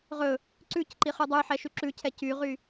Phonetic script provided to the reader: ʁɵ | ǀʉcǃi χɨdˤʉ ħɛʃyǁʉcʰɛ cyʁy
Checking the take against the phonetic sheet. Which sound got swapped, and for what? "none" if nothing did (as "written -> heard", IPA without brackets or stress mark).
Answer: ɨ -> ʉ